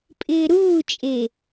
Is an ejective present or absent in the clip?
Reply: present